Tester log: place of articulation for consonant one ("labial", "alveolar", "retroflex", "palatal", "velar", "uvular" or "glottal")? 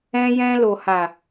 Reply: palatal